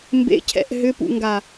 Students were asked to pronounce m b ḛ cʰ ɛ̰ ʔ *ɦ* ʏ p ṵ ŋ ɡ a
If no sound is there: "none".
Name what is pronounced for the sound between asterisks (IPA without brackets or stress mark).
ɦ